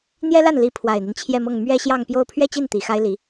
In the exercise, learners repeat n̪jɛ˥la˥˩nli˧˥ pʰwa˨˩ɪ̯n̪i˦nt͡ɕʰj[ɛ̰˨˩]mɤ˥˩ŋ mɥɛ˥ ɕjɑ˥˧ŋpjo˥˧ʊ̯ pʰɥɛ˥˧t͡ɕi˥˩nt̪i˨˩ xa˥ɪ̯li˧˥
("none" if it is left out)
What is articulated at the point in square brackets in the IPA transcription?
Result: ɛ˥˧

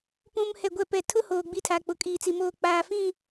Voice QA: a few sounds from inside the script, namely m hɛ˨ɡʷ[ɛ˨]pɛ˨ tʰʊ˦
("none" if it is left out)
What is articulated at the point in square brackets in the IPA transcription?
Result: ɛ˨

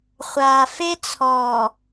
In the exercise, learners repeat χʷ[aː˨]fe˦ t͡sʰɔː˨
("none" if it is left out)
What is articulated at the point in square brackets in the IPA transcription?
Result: aː˨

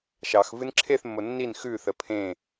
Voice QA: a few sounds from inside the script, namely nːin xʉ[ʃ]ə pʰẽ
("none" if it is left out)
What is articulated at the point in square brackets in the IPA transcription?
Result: θ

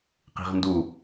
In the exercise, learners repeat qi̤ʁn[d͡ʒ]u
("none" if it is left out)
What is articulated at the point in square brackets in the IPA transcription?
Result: d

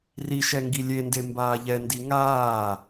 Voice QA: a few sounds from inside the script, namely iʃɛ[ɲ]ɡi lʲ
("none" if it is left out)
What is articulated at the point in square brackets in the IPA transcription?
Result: ŋ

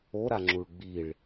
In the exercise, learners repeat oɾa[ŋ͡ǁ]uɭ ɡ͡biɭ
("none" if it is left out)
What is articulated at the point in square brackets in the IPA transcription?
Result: ŋ͡ǁ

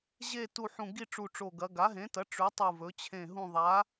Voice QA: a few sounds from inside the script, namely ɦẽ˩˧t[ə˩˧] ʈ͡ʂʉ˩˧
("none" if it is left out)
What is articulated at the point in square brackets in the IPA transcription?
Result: ɐ˩˧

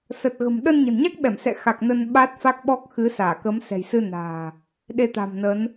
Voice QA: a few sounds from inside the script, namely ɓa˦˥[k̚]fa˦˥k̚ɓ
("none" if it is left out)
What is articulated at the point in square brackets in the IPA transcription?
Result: t̚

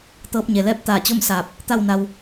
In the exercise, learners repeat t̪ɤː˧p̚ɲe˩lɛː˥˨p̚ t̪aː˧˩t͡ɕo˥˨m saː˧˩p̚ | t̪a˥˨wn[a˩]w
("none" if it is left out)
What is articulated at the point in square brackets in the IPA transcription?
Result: a˧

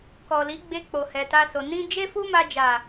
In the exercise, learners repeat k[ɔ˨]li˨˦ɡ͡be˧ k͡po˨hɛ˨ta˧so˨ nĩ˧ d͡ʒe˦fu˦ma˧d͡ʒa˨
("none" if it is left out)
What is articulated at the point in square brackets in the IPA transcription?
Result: ɔ˨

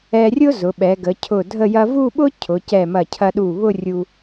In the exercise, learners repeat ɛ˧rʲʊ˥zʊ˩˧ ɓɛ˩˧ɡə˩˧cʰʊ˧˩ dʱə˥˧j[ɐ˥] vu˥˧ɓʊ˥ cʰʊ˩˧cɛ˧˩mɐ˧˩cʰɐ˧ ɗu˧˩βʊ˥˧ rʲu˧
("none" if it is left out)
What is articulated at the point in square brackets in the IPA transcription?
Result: ɐ˥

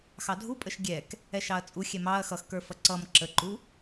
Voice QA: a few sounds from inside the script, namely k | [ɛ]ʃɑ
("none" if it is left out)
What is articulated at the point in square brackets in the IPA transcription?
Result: ɛ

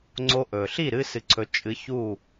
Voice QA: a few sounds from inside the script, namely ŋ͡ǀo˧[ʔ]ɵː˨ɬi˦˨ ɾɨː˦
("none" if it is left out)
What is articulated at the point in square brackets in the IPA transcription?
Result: ʔ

